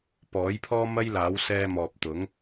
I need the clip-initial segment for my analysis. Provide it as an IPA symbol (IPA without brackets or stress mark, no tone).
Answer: p